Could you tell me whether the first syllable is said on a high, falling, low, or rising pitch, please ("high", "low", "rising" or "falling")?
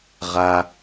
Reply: low